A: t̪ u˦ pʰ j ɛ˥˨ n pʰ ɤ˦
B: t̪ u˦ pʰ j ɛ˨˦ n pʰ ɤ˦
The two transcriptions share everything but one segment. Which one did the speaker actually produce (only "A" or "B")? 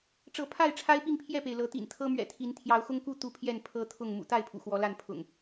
A